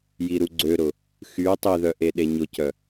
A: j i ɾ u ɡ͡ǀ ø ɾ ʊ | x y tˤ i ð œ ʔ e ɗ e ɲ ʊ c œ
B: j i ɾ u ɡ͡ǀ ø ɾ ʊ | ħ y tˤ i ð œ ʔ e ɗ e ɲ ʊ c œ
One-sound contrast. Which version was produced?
A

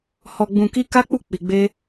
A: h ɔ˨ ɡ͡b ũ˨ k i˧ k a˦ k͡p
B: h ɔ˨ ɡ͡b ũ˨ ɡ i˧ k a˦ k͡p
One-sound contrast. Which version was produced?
A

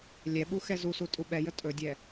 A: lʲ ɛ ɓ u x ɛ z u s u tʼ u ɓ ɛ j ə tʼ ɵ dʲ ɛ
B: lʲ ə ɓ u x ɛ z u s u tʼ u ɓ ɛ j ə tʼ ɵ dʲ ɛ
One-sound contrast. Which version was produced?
A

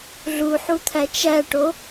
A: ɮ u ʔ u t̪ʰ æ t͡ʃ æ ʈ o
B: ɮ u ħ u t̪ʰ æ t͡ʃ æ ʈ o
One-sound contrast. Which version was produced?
B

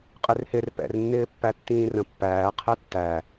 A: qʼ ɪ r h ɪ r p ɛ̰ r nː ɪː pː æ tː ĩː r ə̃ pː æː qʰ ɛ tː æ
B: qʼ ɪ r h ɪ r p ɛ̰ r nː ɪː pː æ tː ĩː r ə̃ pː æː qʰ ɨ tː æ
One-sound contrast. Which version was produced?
A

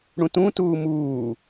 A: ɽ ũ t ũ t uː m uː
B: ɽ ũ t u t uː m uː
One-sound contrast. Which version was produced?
A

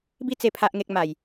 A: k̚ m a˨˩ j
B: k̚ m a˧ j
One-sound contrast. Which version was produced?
A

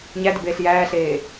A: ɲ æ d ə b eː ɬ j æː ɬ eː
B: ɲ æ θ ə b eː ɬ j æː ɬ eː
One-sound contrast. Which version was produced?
A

